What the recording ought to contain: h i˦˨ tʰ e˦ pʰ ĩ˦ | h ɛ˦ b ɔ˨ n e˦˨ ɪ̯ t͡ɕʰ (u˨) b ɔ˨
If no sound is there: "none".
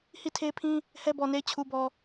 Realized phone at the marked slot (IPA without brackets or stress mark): u˨